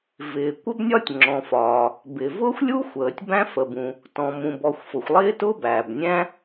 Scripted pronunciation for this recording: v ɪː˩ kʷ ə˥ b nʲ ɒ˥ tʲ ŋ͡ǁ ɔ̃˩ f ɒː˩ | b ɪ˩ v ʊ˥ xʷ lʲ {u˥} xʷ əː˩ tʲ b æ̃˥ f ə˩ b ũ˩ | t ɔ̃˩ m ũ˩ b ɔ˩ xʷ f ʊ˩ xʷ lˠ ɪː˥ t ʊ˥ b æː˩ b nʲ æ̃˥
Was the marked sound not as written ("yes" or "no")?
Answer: no